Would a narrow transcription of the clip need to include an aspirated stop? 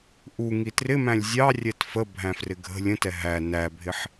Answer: no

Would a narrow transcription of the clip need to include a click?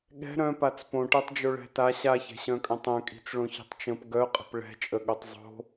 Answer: no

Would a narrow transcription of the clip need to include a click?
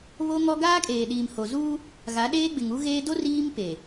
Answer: no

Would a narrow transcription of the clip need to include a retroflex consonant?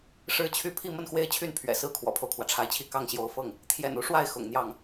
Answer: yes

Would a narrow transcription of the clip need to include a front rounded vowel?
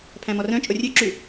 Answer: yes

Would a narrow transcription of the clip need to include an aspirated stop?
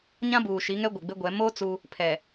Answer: yes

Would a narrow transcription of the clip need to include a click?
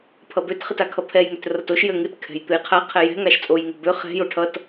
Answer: no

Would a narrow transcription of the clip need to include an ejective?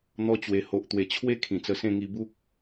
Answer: no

